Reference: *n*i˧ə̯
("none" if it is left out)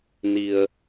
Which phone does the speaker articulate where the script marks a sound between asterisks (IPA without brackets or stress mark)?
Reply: n